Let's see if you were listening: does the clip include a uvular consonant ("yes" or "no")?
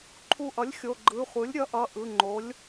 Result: yes